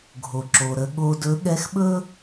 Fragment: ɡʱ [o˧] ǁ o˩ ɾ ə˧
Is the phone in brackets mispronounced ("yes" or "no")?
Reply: yes